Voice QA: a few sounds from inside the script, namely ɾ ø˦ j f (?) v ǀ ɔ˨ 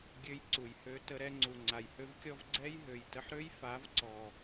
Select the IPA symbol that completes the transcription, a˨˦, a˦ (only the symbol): a˨˦